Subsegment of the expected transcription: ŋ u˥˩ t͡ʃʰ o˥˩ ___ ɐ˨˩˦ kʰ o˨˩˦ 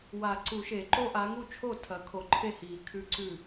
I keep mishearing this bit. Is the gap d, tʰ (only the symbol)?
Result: tʰ